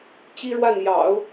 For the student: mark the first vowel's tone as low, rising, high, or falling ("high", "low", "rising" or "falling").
high